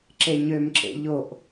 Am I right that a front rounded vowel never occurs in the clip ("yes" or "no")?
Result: no